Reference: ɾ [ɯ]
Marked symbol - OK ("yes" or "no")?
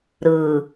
yes